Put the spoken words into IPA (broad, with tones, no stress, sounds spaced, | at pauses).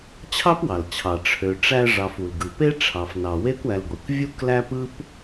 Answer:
t͡ɕʰ ɑ˥ p w ɑ˩ l t͡ɕʰ ɑ˩ ʈ͡ʂʰ ø˨ ʈ͡ʂ æ˦ ʐ ɑ˨ f u˩ l ɡ ɯ˩ p e˥ ʈ͡ʂʰ ɑ˩ f n ɑ˩ w e˥ kʷ æ˨ l ɡʷ i˩ kʷ vʲ u˥ k l æ˥ p ɯ˥ p